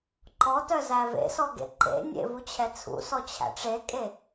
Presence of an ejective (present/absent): present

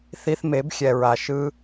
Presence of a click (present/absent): absent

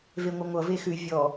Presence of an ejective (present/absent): absent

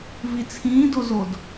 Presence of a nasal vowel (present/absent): present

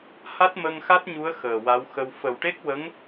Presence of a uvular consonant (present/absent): absent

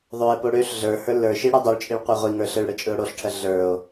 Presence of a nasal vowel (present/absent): absent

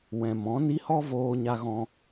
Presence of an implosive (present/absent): absent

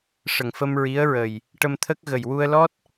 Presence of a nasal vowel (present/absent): absent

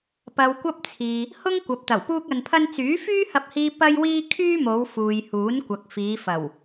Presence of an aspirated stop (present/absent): present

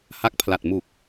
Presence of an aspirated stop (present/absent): present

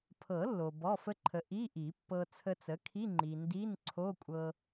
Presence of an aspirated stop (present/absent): present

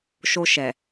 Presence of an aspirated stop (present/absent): absent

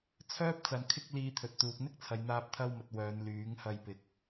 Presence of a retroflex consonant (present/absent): absent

